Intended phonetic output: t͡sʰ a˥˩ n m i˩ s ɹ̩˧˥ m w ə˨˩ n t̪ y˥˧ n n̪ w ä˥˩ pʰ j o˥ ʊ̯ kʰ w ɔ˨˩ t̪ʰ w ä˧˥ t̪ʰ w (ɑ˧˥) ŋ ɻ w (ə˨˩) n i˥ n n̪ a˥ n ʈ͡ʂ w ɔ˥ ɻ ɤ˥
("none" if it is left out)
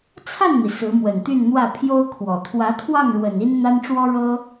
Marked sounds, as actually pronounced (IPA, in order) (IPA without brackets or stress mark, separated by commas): ɑ˥˩, ə˨˩